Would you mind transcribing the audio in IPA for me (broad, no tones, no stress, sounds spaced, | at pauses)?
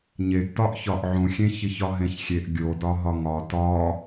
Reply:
ɲ e ɡ t ɒ ʔ ç ɒ ʔ ʕ ũ xʲ ẽ ç i ç ɒ ɦ ẽ ç xʲ e ʔ ɡʲ o d ɒ ɦ ɒ ŋ ɒ t ɒ